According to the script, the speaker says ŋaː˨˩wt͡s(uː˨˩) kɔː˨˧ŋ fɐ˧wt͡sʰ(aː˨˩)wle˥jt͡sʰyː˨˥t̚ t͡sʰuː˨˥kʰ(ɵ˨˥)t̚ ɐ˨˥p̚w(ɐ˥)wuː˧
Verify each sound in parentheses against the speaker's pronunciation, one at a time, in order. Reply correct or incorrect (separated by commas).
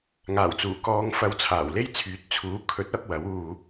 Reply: correct, correct, correct, incorrect